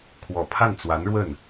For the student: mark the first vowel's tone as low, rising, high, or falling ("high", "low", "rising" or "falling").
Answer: low